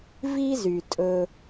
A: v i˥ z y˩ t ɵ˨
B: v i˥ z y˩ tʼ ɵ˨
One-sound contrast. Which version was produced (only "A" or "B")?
B